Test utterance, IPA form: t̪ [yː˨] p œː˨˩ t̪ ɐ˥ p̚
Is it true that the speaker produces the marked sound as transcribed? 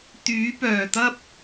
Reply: no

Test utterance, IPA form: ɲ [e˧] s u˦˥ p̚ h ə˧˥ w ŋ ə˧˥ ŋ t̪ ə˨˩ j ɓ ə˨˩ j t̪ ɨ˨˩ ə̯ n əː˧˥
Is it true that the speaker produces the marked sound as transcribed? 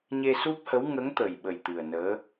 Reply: yes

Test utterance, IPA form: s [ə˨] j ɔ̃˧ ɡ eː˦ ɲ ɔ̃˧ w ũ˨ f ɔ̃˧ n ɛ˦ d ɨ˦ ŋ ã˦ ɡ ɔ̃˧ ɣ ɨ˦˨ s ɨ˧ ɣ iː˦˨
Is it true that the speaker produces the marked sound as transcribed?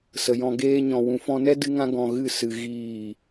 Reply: yes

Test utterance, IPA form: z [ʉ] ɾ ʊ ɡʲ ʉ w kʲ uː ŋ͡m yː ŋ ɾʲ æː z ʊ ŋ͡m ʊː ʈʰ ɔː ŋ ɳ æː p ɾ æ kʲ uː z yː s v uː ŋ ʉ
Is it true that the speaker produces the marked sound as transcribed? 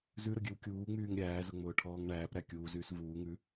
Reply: yes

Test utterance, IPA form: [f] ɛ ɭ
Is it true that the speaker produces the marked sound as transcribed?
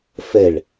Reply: yes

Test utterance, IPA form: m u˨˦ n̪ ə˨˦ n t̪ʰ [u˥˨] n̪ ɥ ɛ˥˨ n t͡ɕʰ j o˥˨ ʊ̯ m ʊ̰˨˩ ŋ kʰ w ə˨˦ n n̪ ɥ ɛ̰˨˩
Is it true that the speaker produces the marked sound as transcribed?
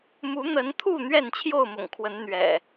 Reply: yes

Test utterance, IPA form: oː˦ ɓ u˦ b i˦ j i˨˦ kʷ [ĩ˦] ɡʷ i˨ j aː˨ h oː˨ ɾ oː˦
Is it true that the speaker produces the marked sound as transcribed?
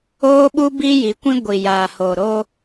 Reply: yes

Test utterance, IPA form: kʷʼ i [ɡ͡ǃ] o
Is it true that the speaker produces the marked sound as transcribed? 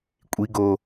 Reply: no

